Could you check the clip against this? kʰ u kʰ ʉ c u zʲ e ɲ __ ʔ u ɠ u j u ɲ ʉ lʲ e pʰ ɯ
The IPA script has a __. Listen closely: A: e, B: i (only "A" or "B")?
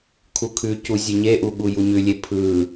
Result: A